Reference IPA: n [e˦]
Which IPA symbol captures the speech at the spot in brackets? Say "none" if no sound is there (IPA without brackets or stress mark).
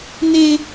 e˦